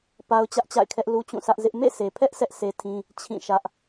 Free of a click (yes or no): yes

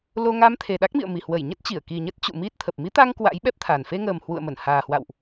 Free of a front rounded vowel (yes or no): yes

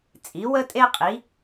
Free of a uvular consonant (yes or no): no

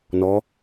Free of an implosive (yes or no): yes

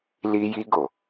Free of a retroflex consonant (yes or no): yes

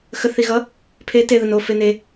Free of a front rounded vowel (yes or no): yes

